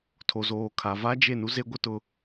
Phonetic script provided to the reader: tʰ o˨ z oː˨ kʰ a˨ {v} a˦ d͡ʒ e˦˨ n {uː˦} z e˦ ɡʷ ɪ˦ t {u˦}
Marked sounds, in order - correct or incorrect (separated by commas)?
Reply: correct, incorrect, incorrect